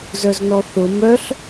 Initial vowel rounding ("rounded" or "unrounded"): rounded